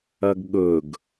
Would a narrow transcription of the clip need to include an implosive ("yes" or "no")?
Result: yes